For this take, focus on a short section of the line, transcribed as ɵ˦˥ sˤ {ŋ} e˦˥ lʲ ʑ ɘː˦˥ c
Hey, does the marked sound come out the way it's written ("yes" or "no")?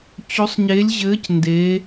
no